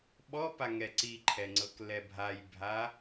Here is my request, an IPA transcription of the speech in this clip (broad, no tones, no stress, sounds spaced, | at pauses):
ɓ ɔ p a ŋ ɛ ǀ i ǃʰ ɛ ŋ͡ǀ ɤ k l ɛ bʱ a j bʱ a